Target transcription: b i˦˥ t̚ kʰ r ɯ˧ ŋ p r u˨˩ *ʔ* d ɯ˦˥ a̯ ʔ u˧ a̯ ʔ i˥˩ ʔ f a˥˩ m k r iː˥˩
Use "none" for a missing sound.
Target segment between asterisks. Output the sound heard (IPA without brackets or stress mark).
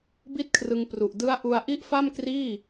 ʔ